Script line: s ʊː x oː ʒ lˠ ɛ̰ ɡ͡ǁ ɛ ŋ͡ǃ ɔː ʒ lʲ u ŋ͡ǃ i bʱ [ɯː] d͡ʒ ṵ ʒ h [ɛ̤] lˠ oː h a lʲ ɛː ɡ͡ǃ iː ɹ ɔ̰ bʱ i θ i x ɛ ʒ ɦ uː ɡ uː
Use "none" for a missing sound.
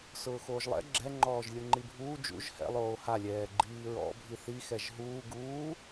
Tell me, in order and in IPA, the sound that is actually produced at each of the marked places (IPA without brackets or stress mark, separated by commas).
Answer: uː, ɛ̰